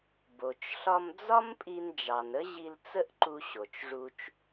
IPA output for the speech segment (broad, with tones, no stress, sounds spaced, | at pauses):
b o˩ t͡ʃ ɬ ɒ˧ m d͡z ɒ˥ m pʼ i˧ n d͡ʒ ɑ˩ n ə˥ ʑ i˧ l t͡s ə˥ ʔ ǃ u˧ ɕ o˩ t͡ʃ ʐ u˧ t͡ʃ